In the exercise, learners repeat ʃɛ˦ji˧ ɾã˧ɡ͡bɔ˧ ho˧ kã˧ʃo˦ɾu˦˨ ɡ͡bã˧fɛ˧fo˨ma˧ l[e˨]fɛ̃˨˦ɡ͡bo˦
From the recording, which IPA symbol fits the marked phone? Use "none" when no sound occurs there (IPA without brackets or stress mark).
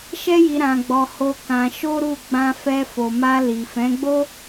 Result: i˨